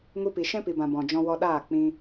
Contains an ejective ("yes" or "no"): no